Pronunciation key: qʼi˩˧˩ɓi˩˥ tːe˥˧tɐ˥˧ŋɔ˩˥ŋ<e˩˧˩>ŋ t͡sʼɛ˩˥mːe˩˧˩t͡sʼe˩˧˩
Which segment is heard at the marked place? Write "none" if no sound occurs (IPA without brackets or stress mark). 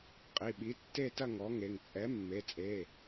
e˩˧˩